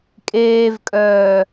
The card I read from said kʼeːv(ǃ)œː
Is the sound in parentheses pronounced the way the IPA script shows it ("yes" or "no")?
no